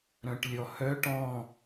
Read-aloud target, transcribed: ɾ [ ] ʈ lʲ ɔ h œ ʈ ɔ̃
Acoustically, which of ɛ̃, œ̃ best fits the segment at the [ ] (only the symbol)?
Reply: œ̃